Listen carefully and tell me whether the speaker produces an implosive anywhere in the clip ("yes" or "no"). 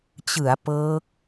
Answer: no